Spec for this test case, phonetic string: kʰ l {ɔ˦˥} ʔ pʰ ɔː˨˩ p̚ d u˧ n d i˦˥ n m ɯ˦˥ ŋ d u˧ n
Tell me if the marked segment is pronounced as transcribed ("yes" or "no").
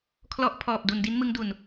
yes